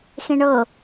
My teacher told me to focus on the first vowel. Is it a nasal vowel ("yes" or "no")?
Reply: yes